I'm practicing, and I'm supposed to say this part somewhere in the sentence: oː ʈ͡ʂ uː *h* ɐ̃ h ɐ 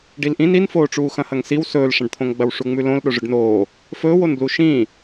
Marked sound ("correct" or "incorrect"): incorrect